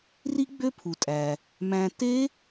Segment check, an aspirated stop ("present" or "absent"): present